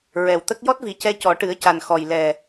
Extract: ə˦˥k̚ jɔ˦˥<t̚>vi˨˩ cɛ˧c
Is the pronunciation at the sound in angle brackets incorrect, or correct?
correct